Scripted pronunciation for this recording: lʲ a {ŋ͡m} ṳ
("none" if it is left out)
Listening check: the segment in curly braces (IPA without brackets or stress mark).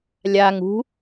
ŋ